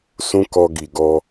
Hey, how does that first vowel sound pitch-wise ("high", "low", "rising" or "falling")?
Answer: high